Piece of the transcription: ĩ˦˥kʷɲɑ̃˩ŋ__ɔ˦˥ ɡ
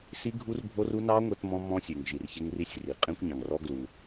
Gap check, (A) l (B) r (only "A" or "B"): B